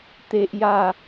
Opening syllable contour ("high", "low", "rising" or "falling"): high